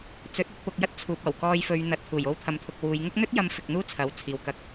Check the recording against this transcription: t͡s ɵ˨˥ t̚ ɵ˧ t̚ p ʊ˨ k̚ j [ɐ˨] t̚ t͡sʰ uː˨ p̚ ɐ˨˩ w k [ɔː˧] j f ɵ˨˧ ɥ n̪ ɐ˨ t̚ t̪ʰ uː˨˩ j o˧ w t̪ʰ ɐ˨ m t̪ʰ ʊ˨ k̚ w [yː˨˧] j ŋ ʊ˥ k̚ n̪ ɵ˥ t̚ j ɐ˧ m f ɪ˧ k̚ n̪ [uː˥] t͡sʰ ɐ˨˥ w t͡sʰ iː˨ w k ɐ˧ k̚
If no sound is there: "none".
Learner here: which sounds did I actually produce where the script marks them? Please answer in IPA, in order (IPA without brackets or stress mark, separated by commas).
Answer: ɐ˥, ɔː˧, uː˨˧, uː˥